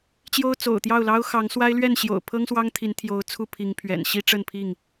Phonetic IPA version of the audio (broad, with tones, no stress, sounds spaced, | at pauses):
t͡ɕ j o˦ ʊ̯ t͡s o̰˨˩ ʊ̯ t̪ j ɑ˥˨ ʊ̯ l ɑ˦ ʊ̯ x ɑ˨˦ ŋ s w a˦ ɪ̯ l ɥ ɛ˥˨ n ɕ j o̰˨˩ ʊ̯ pʰ ɤ˦ ŋ s w ɑ˦ ŋ t̪ʰ i˨˦ n t̪ʰ j o˨˦ ʊ̯ t͡sʰ u˥˨ pʰ i˨˦ ŋ pʰ ɥ ɛ̰˨˩ n ɕ i˦ ʈ͡ʂ ə˥˨ n pʰ i˥˨ ŋ